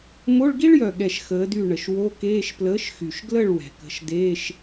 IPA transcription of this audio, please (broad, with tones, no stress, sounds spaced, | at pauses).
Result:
m o˧˥˧ ɭ ɡ i˥ ɭ j œ˨˩ ɠ ɛ˨˩ ʃ x əː˨˥ d y˥˨ ɳ ə˨˩ ʃ w o˧˥˧ k eː˧˥˧ ʃ p l əː˨˥ ʃ x y˨˩ ʃ ɡ l ə˥˨ ɭ w ɛ̤˨˩ k ə̤˨˥ ʃ d eː˧˥˧ ʃ